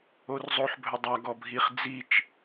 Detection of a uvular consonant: present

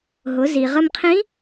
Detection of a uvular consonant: present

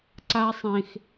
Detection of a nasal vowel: present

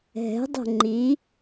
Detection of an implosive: absent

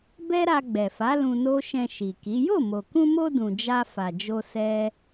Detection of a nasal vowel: present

